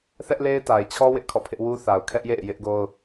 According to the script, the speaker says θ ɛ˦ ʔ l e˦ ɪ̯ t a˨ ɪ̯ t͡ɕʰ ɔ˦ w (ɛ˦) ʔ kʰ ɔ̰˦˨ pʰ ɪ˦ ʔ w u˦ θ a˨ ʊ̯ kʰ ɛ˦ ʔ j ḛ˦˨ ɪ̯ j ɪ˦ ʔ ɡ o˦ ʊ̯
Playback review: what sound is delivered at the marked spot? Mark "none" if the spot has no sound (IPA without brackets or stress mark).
ɪ˦